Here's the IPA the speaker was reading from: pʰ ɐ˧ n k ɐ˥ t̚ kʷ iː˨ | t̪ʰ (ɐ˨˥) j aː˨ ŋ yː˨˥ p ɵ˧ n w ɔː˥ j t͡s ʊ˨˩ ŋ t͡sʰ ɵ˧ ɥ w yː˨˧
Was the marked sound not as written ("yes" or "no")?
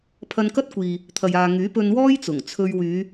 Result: yes